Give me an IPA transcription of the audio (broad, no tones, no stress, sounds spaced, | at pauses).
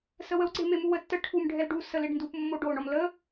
s ə w ə w ɡ͡ǀ e m e m u w ə tː ə ʈʰ u m ɖʱ ɛ l ɖ u s ə l e ɖ n d u p mː o ɖ o ɳ ɔ m l ə